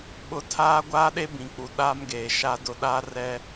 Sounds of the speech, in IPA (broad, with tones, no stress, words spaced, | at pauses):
ɓʊ˨ tʰaː˦ɡʷaː˦ɗe˦ bĩ˨k͡pu˨ ɗa˦mɡeː˨ʃa˦dʊ˦ ɗa˦rɛ˦